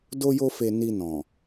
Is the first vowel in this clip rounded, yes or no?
yes